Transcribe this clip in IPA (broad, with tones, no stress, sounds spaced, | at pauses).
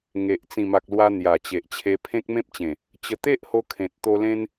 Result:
ŋ e˨ ʔ t͡s ĩ˨˩ m a˨ k̚ l w a˧ n̪ j a˨˩ t͡ɕ e˨ ʔ t͡ɕʰ e˧ pʰ ẽ˦ k̚ m ẽ˦ p̚ t͡ɕ ẽ˨˩ | t͡ɕ ə˧ t̪ e˦ ʔ h o˧ kʰ ẽ˨ t̚ t̪ o˧ l ẽ˦ n